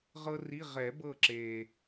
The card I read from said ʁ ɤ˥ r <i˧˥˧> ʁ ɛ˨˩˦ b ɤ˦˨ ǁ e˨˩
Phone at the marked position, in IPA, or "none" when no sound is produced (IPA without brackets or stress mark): i˧˥˧